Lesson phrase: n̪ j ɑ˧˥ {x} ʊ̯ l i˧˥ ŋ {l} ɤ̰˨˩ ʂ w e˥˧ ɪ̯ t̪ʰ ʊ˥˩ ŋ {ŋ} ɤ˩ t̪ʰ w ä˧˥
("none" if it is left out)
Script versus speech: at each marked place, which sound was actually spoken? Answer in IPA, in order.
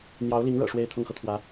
none, ɻ, x

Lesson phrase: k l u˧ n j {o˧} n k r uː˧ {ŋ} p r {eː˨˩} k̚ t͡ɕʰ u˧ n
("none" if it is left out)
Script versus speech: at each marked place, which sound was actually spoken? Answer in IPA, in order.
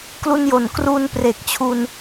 o˨˩, n, e˨˩

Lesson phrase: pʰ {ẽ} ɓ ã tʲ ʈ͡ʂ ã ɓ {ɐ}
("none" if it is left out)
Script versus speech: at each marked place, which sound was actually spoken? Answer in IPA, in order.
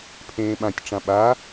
ẽː, a

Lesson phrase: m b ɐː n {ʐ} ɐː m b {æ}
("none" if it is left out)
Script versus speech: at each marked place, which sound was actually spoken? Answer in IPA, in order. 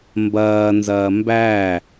z, æ

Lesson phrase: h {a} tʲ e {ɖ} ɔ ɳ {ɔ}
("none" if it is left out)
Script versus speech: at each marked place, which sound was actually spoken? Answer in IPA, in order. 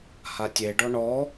a, ɖ, ɔ

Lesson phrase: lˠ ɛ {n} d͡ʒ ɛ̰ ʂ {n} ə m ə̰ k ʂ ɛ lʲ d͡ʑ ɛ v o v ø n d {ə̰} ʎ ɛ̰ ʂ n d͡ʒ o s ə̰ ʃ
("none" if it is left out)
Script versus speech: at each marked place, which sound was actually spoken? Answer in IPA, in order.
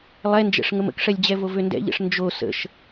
n, ŋ, ɛ̰

